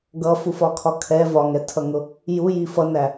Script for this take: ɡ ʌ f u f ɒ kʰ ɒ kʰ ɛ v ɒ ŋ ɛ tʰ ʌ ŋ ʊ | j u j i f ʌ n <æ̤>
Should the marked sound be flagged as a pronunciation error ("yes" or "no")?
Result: yes